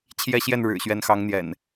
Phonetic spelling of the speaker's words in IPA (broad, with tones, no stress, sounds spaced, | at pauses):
t͡ɕʰ j ɛ˦ ɕ j ɛ˥˨ n ɻ ɻ̩˨˩ ɕ ɥ ɛ˨˦ n x ɑ˨˦ ŋ n̪ j ɛ̰˨˩ n